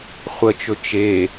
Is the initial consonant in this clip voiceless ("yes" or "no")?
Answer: yes